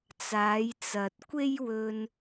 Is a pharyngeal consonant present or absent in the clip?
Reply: absent